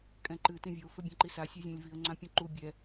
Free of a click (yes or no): no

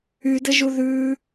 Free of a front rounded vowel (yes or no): no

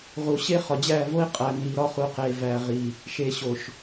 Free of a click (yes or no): yes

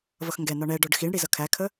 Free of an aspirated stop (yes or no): no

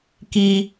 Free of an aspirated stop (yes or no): yes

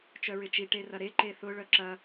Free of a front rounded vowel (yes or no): no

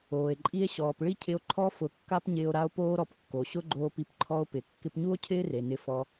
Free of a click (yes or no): no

